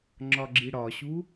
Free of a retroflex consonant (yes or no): no